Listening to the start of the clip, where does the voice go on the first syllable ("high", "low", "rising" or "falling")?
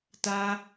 high